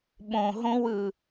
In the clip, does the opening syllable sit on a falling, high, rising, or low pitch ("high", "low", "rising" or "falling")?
low